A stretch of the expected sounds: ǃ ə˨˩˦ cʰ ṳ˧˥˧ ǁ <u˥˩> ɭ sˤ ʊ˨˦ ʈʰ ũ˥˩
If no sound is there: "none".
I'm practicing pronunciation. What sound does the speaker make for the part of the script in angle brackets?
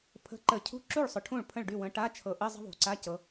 u˥˩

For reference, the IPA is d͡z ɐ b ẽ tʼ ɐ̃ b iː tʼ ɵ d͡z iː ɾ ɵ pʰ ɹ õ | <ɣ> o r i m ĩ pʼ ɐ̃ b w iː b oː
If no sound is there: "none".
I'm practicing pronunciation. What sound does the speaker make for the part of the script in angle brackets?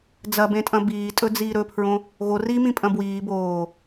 ɣ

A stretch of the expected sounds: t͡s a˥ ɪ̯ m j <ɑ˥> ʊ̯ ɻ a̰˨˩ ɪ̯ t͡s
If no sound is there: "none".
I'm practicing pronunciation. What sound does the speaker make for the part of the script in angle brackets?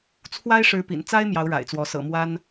ɑ˧˥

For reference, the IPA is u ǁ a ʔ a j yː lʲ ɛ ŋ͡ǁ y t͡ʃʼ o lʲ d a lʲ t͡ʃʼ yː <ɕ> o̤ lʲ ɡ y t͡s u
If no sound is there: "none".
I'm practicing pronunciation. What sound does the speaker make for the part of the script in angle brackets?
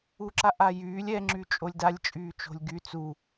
t͡ʃ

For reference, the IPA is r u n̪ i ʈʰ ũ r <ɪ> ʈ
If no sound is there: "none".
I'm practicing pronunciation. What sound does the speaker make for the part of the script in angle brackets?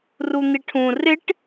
ɪ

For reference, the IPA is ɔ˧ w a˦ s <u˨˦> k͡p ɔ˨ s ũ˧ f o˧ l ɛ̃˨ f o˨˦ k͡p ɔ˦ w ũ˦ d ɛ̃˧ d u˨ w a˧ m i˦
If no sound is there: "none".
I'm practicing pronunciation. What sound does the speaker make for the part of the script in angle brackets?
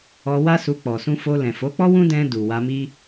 u˧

